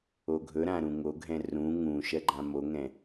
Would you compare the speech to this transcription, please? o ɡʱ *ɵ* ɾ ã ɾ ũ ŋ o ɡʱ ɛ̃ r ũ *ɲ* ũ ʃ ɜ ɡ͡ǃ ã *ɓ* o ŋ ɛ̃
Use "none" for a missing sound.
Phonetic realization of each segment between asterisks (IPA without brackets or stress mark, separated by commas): ɵ, ŋ, m